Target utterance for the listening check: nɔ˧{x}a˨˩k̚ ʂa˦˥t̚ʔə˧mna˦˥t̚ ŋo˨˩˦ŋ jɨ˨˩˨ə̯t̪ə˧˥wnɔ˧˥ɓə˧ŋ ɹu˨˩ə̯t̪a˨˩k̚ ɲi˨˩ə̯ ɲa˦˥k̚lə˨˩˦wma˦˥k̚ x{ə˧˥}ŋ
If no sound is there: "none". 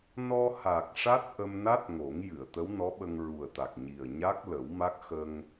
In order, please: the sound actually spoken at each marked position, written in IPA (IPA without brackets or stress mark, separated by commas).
h, ə˧